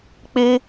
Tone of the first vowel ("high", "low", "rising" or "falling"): high